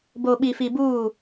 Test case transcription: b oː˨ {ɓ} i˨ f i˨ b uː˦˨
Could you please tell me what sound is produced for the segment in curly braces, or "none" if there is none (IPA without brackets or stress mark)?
ɓ